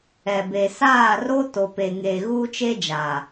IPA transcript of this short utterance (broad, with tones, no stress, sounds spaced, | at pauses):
ɛ˨ b e˨ s aː˦˨ r o˦ t o˨ p e˨ ŋ eː˨ ɣ uː˦ t͡ʃ e˦ d͡ʒ aː˨